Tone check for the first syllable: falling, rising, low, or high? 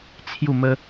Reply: falling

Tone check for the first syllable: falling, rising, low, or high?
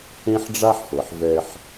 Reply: high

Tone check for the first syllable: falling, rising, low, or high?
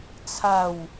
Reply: falling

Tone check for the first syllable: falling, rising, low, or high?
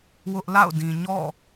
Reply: high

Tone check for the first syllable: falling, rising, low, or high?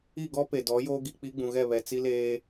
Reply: falling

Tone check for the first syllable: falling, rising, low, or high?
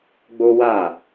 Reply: high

